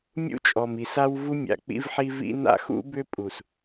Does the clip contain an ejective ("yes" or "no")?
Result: yes